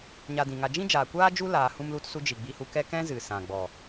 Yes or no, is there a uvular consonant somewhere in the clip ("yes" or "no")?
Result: no